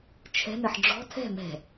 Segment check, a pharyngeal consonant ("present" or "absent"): present